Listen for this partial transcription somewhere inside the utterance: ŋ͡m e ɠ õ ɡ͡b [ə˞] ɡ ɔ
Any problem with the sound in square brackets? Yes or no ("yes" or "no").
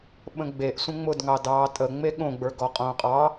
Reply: no